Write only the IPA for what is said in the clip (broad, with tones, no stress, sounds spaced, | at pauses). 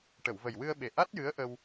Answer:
ʈ ə˨˩˨ w v ə˨˩ j w ɨ˧ ə̯ ɓ e˨˩ ʔ a˦˥ t̚ j ɨ˧˥ ə̯ ʔ ə˧ w